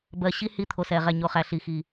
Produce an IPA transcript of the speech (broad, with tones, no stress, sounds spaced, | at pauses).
b ɜ˨ ɕ i˦ h i˧ t̪ʰ o˨ s ɛ˨ ʁ ɛ˨ ɲ o˨ χ æ˨ ɬ i˨ x i˨